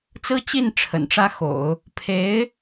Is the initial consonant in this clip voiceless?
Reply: yes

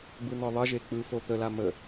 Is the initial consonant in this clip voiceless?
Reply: no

